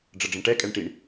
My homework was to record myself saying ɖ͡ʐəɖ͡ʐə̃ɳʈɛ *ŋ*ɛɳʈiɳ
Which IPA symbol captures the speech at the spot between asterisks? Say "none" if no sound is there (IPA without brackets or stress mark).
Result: kʼ